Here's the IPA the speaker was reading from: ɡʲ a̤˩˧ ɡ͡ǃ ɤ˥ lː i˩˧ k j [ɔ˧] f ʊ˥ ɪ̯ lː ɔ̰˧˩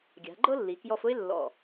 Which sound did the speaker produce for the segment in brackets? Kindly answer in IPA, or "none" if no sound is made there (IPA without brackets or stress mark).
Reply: ɔ˧